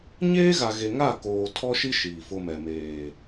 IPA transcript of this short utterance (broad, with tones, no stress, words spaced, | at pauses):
ɲeː˦ɣa˨ ɣe˨ŋa˦˨koː˨ tʰɔ˦ʃi˦ ʃiː˨fʊ˦mɛ˨ meː˨